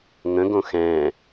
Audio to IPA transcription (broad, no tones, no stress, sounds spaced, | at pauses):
ŋ ə̃ ɡ õ x ɛ̃